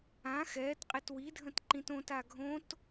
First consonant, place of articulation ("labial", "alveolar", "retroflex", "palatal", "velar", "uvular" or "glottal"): velar